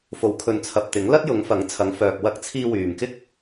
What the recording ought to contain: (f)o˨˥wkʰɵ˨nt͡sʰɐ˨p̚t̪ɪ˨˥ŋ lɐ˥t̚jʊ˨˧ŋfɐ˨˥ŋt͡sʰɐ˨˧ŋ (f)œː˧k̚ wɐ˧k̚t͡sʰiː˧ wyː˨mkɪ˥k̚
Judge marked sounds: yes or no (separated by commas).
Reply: yes, yes